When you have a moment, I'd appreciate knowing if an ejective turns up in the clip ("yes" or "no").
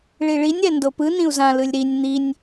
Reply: no